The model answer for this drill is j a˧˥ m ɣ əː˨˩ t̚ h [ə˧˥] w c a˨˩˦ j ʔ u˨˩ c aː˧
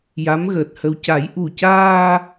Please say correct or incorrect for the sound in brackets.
incorrect: ə˧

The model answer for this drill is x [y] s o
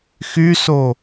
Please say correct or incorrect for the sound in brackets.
correct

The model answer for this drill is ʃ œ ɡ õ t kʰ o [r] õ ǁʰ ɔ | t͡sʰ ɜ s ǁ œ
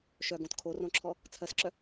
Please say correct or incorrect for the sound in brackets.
correct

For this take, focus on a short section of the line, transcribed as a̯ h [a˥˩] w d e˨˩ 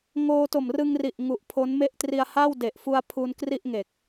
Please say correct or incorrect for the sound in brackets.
correct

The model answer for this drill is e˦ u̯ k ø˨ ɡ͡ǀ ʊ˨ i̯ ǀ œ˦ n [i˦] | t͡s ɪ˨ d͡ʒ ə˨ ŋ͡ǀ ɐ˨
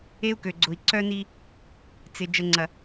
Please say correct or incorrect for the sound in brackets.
correct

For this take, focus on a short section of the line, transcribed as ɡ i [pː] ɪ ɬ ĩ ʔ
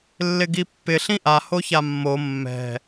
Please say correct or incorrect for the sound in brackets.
correct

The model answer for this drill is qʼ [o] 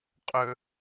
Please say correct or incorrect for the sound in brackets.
incorrect: ɵ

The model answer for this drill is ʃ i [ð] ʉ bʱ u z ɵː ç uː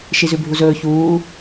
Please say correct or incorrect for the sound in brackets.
incorrect: z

